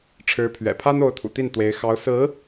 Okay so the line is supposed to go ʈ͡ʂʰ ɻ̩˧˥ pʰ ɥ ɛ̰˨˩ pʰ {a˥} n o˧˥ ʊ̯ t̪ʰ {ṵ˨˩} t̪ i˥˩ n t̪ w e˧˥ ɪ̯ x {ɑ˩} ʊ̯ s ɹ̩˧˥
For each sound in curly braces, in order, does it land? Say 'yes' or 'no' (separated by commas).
yes, yes, no